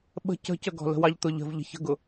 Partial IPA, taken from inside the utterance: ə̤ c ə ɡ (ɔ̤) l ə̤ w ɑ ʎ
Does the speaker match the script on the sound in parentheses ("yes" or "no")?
yes